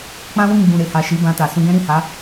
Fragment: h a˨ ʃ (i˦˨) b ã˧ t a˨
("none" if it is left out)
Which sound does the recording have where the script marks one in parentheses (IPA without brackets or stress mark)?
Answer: i˨˦